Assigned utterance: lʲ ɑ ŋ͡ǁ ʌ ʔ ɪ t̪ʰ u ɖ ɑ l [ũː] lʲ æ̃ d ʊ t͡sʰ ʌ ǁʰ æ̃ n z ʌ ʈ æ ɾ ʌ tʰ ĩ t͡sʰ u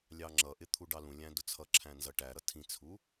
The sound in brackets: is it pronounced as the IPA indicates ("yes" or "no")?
no